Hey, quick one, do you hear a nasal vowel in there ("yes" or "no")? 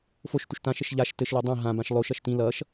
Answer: yes